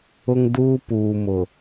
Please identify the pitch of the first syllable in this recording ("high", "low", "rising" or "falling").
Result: high